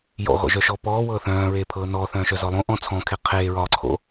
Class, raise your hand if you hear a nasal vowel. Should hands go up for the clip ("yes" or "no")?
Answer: yes